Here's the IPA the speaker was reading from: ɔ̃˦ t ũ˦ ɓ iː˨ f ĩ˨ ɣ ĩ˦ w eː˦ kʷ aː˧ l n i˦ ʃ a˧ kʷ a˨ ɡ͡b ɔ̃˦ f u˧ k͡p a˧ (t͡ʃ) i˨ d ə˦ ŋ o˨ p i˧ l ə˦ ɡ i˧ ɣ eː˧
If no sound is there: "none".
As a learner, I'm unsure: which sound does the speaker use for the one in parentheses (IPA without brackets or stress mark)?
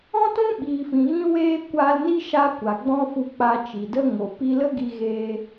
t͡ʃ